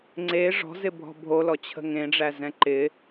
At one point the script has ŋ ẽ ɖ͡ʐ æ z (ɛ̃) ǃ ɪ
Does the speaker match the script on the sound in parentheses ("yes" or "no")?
yes